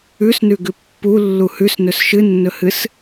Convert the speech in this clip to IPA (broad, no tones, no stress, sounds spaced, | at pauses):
ʉ s n ʉ ɡ ʉ pː u lː u h ʉ s n ɵ s ʃ ɨ nː ɵ h ɨ s